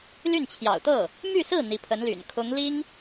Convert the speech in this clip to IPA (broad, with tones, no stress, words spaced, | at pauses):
ly˥˩nt͡ɕʰjɑ̰˨˩ʊ̯t̪ɤ˥˩ | my˥˧sɹ̩˥˩ n̪i˧˥pʰə˧˥nly̰˨˩n kʰʊ˧˥ŋli˥ŋ